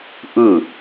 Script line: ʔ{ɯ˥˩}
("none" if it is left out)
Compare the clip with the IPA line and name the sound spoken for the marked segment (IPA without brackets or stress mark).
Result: ɯ˥˩